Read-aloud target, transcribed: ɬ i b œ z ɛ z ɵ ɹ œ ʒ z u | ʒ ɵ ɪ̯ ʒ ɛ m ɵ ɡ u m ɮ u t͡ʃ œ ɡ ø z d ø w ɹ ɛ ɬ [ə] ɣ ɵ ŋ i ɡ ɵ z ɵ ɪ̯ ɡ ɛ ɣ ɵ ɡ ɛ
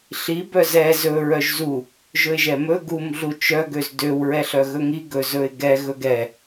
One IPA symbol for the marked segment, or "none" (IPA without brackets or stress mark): œ